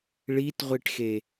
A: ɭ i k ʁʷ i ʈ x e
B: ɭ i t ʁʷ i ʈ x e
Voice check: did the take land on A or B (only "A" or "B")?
B